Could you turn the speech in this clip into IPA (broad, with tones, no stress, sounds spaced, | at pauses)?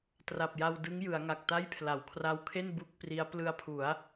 t r a˨˩ p̚ j a˧ w d ɯ˦˥ ŋ j ɯ˩˦ a̯ ŋ a˨˩ k̚ t a˥˩ j pʰ l a˩˦ w kʰ r a˦˥ w kʰ e˥˩ n b u˥˩ k̚ p r i˦˥ a̯ p l ɯ˧ a̯ pʰ u˩˦ a̯